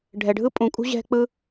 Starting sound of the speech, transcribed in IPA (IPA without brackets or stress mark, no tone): ɖʱ